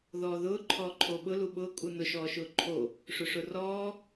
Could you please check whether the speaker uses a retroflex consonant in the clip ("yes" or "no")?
yes